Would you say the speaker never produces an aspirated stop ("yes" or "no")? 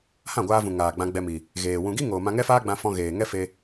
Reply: yes